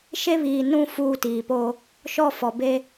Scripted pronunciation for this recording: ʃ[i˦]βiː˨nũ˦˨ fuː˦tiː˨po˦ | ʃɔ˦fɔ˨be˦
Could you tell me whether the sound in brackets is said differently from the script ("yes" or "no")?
yes